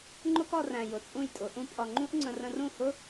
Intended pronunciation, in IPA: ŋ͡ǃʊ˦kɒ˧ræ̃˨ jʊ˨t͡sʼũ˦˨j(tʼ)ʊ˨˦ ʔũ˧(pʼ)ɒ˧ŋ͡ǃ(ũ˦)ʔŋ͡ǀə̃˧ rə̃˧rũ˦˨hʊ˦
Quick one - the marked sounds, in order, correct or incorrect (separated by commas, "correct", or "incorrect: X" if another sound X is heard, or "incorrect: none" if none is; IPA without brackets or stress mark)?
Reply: correct, correct, correct